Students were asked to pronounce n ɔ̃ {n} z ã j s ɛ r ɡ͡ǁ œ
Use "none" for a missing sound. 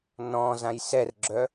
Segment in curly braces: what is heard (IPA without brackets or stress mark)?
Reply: none